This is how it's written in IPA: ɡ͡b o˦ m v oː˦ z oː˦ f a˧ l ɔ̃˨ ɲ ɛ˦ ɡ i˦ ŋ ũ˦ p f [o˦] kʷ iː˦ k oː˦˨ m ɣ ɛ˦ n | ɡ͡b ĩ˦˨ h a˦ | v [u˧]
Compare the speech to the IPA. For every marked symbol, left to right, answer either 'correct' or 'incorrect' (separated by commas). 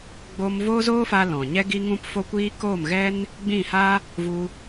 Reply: correct, correct